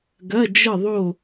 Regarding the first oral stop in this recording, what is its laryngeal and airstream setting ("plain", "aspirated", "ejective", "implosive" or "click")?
plain